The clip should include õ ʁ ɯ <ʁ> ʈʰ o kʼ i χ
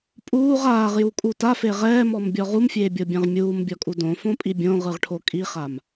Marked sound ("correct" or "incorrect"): correct